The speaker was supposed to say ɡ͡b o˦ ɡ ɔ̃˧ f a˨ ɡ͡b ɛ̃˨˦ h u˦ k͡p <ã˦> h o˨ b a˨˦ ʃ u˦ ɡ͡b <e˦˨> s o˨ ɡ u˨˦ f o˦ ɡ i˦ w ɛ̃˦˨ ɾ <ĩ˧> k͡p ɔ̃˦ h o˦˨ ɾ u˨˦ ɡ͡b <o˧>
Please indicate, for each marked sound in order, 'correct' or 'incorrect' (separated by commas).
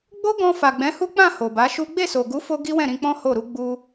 incorrect, correct, correct, incorrect